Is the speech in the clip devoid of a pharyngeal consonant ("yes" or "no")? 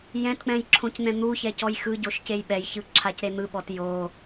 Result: yes